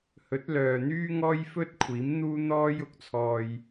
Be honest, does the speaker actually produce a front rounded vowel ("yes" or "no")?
yes